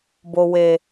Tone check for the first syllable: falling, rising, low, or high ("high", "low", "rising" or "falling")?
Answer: low